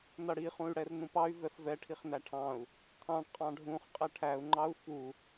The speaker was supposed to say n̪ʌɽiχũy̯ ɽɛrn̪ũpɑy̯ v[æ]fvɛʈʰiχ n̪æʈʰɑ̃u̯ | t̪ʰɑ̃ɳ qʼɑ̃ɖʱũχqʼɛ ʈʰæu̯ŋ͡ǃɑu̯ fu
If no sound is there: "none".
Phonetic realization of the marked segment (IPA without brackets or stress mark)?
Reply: ɛ